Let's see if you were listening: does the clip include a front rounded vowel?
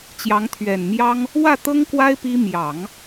no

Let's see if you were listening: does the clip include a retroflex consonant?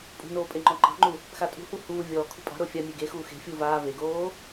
no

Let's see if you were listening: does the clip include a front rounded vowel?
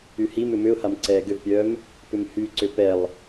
yes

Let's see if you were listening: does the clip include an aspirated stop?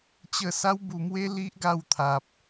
yes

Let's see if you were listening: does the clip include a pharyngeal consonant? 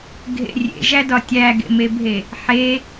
yes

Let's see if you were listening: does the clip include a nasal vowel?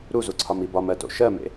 no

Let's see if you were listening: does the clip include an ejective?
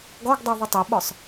no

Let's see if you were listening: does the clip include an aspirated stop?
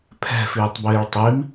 yes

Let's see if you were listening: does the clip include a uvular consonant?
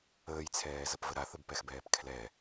no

